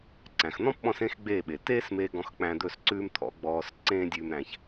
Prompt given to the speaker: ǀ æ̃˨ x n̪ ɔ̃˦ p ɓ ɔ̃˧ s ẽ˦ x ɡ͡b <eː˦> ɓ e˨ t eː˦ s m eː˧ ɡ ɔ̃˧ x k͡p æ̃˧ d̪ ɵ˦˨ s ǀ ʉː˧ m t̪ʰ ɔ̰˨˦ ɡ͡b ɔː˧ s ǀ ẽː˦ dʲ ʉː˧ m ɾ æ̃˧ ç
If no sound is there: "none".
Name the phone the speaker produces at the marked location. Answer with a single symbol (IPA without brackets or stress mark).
eː˦˨